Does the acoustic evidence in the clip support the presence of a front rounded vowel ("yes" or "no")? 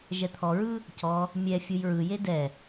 no